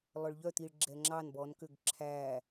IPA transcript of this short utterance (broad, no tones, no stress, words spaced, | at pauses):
lˠœɭʎœt̪iɭ ɡ͡ǁɛŋ͡ǁɑn bɔnkøɡ ǁʰæ